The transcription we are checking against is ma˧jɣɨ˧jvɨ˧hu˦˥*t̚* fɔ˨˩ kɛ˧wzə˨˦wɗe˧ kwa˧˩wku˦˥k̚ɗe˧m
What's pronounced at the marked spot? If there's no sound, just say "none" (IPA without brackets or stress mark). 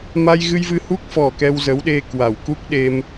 k̚